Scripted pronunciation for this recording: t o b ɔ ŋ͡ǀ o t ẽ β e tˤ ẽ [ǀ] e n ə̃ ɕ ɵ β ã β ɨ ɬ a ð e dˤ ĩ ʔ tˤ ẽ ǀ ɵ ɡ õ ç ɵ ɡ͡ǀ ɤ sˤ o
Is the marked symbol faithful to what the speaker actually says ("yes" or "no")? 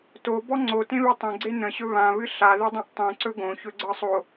no